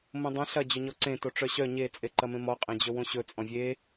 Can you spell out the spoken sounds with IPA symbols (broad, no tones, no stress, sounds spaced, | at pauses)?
m õ dˤ ɐ̃ ɬ ɐ d͡ʑ ɵ ɲ ɔ ǀ ẽ t o ʈ͡ʂ œ ɕ œ ɲ e t͡sʼ e ǃ ɐ m ẽ m ɔ qʼ ẽ d͡ʑ ɵ w õ ɕ ɵ t͡sʼ ɔ̃ vʲ e